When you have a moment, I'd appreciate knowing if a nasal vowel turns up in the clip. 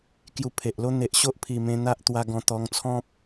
yes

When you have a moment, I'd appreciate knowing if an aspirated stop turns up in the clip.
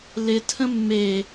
yes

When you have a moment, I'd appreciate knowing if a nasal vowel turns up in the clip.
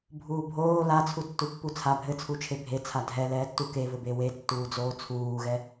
no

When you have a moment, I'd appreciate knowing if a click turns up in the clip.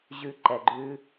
yes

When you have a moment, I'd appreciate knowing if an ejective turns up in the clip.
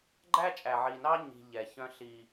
yes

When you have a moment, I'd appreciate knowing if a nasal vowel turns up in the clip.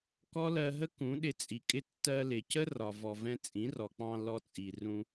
yes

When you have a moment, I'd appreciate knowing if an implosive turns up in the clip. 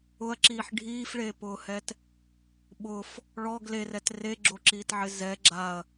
yes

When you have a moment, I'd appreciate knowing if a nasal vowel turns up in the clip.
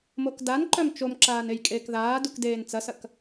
no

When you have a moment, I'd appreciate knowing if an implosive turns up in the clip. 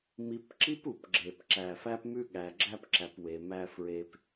yes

